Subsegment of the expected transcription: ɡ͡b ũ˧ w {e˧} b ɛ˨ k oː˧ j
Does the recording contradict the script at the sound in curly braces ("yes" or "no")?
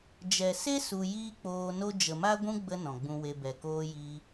no